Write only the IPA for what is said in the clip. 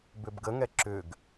b ʏ b ɡ ə ŋ ɛ ǁ ʏ ɡ

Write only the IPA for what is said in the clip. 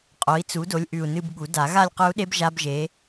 qʼ o˩˥ i̯ t͡s u˩˥ d o˩˥ lʲ ʔ ʉ˨˩ u̯ n ɨ˦˨ b ɠ u˨˩˦ d a˨˩˦ ɣ a˦˨ lʲ q ɵ˧˥ u̯ ɗ e˧˥ b ʒ a˧˥ b ʒ e˩˥

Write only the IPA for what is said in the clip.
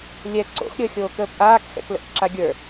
lʲ ɛ ǀ o̰ x ɾʲ əː xʲ oː k əː p ʔ aː k x ɛ̰ k l ə̰ ʔ ǁ a ɡʲ ə˞

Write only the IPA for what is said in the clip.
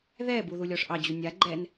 ð ɛ b u ð u lʲ ɔ ʂ ʔ ɑ d͡ʑ u nʲ a ɡ͡ǃ ɛ n

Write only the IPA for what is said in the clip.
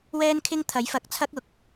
w ɛː˥ n kʰ ɪ˥ ŋ t̪ʰ ɐ˨˥ j f ɐ˨˥ k̚ t͡sʰ ɐ˥ k̚ ʊ˨˥ k̚

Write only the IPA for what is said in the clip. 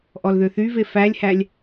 ʔ ɔ l ð ø θ y v e f æ lʲ h æ lʲ

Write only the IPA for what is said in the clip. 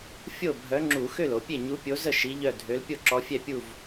fʲ o˥˩ bʱ œ˨˥ ŋ͡ǁ u˧˩˧ x ø˥˩ l o˧˩˧ pʲ e˥˩ ɲ u˨˥ pʲ o˨˥ z ə˥˩ ʃ i˨˥ ʎ œ˥˩ dʱ ø˨˥ l pʲ o˥˩ ǁ ɔ˨˥ fʲ ɛ˥˩ pʲ u˥˩ v

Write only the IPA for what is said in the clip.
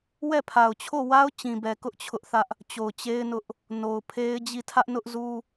w ɛ˦˨ pʰ a˨ ʊ̯ t͡ɕʰ o˦˨ w a˦ ʊ̯ t͡ɕ ĩ˨ b ɛ˨ k ʊ˦ ʔ t͡ɕʰ ʊ˦ ʔ θ ä˦ ʔ | t͡ɕ o˨ ʊ̯ t͡ɕ e˦ ɪ̯ n ʊ˦ ʔ | n o˨ ʊ̯ pʰ e˦ ɪ̯ d͡ʑ i˦˨ tʰ ä˦ ʔ n ʊ˦ ʔ z u˦

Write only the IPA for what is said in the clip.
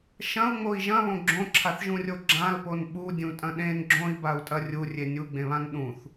ʃ ɐ̃ u̯ ŋ͡m o i̯ ʒ ɐ̃ β õ ɡ͡ǁ õ ǁʰ a θ ʒ ũ rʲ o ɡ͡ǁ ã l p o n ɓ u dʲ ũ tʼ ɐ̃ ɗ ẽ n ɡ͡ǁ õ i̯ b a u̯ tʼ ɐ rʲ u rʲ e nʲ u ɡ͡b ẽ β ã n ɗ ũ θ

